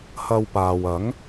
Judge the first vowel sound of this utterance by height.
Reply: low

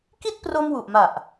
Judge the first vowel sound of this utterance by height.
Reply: high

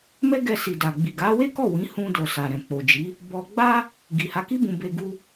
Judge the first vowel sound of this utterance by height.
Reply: mid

